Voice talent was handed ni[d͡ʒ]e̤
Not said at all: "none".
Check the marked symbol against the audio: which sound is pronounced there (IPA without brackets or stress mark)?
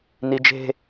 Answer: d͡ʒ